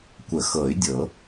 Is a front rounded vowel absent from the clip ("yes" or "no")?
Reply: no